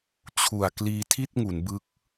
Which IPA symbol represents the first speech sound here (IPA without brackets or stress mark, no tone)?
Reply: t͡ɕʰ